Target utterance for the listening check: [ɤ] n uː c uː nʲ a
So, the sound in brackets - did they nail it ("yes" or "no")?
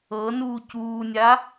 yes